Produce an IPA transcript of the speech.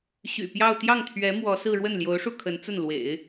ɕ y̰˨˩ p j ɑ˥˧ ʊ̯ t̪ j ɑ˥˩ ŋ t̪ʰ ɥ ɛ˧˥ m w ɔ˧˥ s ɹ̩˥˧ ɻ w ə˥˩ n l j o˧˥ ʊ̯ ʂ u˥˩ kʰ ə˧˥ n t͡s ə˥˩ n l w ḛ˨˩˦ ɪ̯

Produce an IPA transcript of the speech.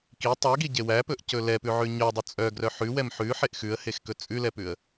k i tˤ e ɡ i ɟ e w æ p ɵ ʔ c ɵ l ɛ p ʉ ʕ ʉ ɲ œ dˤ ɵ t͡sʼ œ ɡ r œ ħ ʉ w ɛ m ħ ʉ ħ e ʔ x ʉ ə̯ h e x k ɵ t͡sʼ ʉ l ɛ p ʉ ə̯

